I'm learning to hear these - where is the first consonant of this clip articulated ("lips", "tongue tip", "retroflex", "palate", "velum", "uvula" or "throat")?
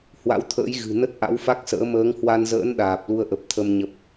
throat